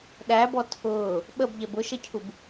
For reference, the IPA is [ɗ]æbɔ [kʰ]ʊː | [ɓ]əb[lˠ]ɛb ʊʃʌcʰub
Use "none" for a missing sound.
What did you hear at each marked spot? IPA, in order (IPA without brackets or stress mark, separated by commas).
ɗ, tʰ, ɓ, ʎ